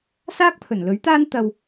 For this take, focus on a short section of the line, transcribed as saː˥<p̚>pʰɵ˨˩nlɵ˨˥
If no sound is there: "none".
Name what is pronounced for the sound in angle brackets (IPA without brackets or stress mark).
k̚